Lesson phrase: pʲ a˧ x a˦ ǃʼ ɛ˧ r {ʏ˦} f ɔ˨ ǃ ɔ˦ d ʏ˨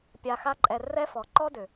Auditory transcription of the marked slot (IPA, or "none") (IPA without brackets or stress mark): ɛ˦